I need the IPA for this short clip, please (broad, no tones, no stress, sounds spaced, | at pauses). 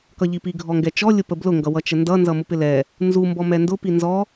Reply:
k ʌ ʎ i p i ɡʱ ɔ ŋ ɡ ɛ t͡ʃ ɔ lʲ ʊ p ə b l ʊ ŋ ɡ ʌ w ʌ t͡ʃ ə n d ʌ n z ʌ m ʊ p ɪ l ɛ | n z u m b ɔ m ɛ n d ʊ p i n z ɔ